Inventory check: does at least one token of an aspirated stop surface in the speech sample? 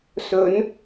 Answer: no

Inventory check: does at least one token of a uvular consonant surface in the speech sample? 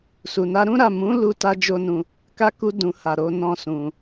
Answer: no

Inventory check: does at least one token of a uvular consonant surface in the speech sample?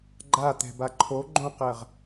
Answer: yes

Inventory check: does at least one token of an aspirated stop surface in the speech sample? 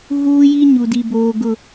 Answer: no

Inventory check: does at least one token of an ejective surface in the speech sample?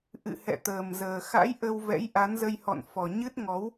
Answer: no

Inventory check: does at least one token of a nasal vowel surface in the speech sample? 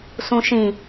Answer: yes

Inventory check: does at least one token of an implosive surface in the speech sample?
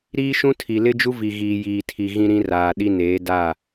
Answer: yes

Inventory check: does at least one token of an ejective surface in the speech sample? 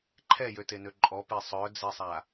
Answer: yes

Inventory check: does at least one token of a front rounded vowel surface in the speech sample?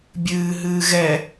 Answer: no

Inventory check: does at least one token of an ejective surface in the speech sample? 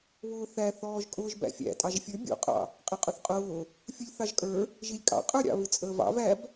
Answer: yes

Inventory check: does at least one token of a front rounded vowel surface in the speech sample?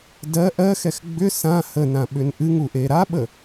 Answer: yes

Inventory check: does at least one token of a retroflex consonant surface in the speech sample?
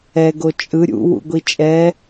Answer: no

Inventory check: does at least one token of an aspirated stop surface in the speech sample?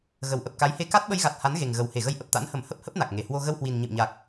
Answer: no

